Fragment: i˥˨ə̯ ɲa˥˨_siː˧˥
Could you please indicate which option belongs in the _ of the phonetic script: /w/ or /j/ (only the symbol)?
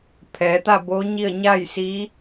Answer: j